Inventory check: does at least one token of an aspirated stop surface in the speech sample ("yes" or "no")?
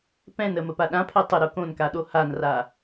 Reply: yes